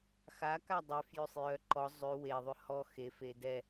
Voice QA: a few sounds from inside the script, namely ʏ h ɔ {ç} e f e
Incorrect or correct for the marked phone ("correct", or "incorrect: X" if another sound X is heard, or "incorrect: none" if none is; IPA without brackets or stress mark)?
incorrect: x